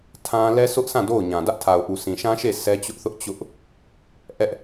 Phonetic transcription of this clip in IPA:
tʰ ã˦ l ɛ˦ s ʊ˦ ʔ s ã˦˨ d o˦˨ ʊ̯ ɲ ã˨ d ä˦ ʔ tʰ a˨ ʊ̯ ʔ u˨ sʰ ĩ˨ ʃ ã˦ ʃ e˦˨ sʰ ɛ˦ t͡ɕ ʊ˦ ʔ θ ʊ˦ ʔ t͡ɕ ʊ˦ ʔ | ʔ ɛ˦ ʔ

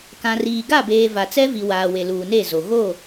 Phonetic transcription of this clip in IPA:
k ã˨ r iː˨ ɡ a˦˨ b eː˨ v a˨ t͡s ɛ˦ v i˨ w aː˨ w e˨ l uː˨ n e˦˨ z o˨ ɣ o˦˨

